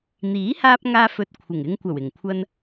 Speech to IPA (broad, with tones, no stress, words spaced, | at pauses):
n̪iː˨˥haː˧p̚ ŋaː˧fɵ˨t̚ kʷʰɪ˨˩ŋɪ˧ŋ kʷɐ˨˩wɪ˨˩ŋ kʷʰɐ˧n